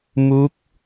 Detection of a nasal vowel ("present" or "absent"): absent